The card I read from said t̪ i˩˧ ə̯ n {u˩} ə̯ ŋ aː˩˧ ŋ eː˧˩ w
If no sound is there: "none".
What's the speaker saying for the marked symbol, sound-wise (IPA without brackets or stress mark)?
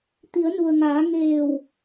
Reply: u˩